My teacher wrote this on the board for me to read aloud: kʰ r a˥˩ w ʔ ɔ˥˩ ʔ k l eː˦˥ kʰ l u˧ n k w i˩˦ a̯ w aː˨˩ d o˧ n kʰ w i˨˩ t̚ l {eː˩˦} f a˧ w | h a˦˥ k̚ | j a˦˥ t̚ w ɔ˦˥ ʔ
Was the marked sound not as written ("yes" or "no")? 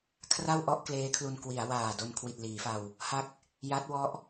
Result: yes